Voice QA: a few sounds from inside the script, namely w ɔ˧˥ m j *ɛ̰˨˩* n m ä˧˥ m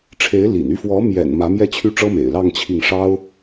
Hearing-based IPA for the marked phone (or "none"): ɛ̰˨˩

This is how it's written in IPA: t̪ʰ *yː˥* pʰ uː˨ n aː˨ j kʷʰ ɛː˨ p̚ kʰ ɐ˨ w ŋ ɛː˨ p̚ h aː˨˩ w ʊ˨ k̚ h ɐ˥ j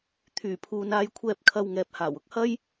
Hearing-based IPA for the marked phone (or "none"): yː˨˩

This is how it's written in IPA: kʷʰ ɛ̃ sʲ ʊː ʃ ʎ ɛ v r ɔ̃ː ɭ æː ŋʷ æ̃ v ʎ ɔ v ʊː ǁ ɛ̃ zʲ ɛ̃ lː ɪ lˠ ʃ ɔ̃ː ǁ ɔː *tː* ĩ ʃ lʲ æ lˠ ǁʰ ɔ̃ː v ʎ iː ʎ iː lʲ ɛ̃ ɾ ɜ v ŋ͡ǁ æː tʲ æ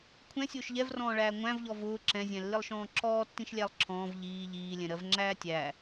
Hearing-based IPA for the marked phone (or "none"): tː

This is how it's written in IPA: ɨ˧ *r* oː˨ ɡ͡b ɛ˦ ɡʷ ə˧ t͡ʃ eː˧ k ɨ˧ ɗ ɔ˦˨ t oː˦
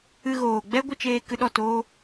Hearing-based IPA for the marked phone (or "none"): ɣ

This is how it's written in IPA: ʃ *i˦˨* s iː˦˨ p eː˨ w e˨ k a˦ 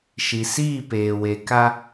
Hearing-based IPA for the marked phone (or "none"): i˨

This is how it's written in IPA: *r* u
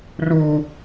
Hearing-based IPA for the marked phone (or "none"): r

